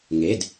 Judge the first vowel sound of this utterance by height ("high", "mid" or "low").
mid